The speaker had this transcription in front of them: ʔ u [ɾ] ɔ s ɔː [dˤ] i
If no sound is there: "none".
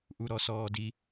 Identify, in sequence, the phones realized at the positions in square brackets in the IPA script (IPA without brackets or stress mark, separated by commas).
ɾ, d